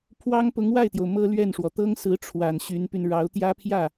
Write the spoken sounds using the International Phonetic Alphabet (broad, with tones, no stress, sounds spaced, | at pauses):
pʰ w ɑ˥ ŋ p ʊ˧˥ ŋ w a˥˩ ɪ̯ t̪ j o˩ ʊ̯ m ɤ˥ l ɥ ɛ˥˩ n ʂ w ɔ˩ t̪ ɤ˥ ŋ s ɹ̩˧˥ ʈ͡ʂʰ w a˨˩ n ɕ y˧˥ n p y˧ n ɻ ɑ˧˥ ʊ̯ t̪ j ä˥ pʰ j ä˥˩